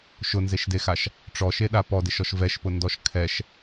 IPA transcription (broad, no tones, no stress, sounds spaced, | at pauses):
ʃ ʊ n z e ʃ d e x a ʃ | ʈ͡ʂ ɔ ʃ e ɗ a p ɔ d ɪ ʃ ɔ ʃ v ɛ ʃ p ʊ n d ɔ ʃ kʰ ɛ ʃ